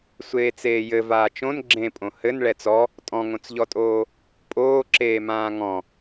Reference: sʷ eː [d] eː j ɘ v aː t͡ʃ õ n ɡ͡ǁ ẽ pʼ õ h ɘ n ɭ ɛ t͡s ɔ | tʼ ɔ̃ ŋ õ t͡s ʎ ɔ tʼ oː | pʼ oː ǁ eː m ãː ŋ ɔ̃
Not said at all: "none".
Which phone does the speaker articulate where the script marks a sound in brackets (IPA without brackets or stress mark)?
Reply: t͡s